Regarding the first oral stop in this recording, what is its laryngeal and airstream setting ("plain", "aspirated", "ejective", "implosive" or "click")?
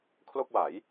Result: aspirated